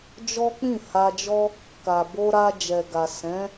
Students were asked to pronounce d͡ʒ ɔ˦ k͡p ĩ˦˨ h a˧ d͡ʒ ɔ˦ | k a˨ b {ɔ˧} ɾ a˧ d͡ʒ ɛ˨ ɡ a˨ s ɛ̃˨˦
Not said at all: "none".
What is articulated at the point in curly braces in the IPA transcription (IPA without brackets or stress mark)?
o˧